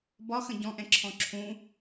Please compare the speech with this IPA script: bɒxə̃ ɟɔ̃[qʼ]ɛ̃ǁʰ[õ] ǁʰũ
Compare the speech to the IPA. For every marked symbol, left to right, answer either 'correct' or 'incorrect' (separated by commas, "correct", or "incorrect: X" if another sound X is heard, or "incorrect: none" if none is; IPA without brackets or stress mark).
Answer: incorrect: ʔ, incorrect: ɔ̃